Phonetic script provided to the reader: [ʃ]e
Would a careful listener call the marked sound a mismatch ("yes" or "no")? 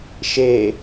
no